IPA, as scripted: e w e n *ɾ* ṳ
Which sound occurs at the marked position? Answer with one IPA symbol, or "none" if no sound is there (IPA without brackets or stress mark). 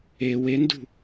d